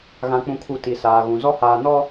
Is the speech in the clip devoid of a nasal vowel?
no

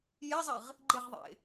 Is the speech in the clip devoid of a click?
no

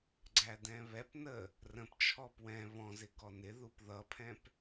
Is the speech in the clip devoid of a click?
no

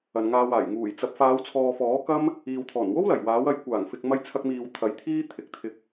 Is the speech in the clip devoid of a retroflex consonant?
yes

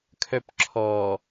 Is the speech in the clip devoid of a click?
no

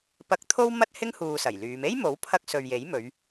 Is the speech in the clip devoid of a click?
yes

